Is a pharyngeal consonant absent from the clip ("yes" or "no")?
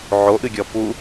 no